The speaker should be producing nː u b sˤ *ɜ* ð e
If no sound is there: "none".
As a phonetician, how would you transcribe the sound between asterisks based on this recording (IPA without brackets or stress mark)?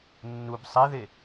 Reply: ɛ